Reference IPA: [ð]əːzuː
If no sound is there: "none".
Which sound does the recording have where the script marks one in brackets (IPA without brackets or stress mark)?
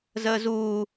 z